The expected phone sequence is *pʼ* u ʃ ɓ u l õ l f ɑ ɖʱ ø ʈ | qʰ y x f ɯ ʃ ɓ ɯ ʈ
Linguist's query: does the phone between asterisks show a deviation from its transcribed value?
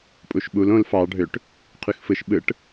no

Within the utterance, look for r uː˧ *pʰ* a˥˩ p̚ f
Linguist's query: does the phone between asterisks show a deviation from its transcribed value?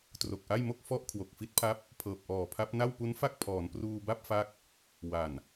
yes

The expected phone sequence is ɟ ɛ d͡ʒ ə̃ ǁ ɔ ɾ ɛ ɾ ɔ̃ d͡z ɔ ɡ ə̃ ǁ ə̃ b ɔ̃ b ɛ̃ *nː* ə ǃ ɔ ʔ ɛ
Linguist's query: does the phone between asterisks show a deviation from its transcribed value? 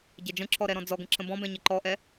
yes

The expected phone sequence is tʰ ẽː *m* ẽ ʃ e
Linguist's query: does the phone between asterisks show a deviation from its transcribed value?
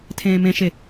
no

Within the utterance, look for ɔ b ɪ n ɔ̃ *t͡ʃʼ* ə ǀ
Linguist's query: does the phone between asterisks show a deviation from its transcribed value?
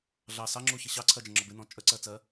no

